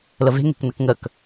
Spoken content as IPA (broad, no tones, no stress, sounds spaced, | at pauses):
l ə v e̤ ŋ e̤ k n ə k ŋ ə k